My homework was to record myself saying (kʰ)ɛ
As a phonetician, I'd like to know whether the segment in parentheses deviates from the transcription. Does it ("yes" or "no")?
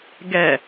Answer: yes